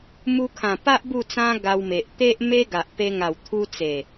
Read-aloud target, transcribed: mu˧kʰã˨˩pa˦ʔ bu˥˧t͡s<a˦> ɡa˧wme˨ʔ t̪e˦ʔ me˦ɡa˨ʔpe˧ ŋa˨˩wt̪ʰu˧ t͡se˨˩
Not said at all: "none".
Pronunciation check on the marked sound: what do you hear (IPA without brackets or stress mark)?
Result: ã˦